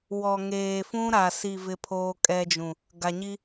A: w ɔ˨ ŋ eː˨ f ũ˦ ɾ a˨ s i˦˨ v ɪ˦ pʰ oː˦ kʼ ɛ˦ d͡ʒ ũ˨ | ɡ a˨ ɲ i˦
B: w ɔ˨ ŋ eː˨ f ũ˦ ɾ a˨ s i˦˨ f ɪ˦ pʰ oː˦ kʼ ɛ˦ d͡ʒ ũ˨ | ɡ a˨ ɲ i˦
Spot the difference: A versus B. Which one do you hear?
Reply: A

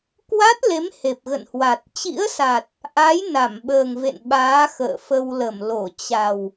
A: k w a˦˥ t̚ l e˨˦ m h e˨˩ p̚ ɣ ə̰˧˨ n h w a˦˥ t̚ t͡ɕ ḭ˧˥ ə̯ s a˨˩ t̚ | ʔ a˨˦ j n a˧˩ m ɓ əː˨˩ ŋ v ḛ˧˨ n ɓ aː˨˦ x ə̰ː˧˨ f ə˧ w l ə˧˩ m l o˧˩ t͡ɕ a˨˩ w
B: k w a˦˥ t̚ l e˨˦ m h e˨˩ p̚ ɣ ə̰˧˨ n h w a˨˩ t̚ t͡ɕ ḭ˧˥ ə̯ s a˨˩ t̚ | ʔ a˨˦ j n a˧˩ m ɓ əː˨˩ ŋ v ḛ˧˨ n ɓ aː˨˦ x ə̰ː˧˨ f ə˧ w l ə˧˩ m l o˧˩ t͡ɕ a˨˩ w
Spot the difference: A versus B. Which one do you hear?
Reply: B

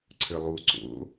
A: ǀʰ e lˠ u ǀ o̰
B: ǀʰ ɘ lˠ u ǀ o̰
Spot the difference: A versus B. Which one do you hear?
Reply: B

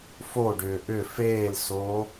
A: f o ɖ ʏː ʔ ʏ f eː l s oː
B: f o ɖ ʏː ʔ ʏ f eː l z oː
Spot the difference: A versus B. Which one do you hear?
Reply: A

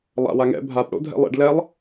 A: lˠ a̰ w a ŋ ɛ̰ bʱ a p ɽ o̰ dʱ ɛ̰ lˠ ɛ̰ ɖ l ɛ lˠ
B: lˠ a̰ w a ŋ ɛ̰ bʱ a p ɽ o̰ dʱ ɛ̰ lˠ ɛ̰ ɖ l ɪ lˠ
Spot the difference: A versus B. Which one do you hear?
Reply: A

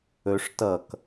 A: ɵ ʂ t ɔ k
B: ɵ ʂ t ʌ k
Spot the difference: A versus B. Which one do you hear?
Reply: B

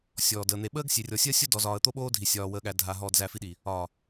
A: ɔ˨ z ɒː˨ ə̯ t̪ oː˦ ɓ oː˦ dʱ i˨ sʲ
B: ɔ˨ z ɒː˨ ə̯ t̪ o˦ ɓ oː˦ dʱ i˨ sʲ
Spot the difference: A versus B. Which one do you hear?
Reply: B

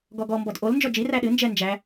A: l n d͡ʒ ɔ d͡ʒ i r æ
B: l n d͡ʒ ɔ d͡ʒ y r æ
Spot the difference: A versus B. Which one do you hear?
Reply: A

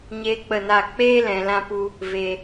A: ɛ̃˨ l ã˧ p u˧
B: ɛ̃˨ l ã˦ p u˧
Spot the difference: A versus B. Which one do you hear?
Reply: A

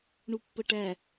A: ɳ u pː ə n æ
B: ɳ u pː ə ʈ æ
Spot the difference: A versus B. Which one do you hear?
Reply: B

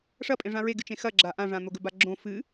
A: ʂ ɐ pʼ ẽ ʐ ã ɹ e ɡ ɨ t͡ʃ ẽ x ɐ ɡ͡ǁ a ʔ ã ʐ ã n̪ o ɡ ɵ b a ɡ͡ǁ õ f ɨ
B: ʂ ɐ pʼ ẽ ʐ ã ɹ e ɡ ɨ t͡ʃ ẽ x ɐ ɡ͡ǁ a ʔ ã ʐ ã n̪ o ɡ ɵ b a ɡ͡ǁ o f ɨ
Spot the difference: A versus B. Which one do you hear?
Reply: A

